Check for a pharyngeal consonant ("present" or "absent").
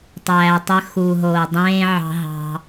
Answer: present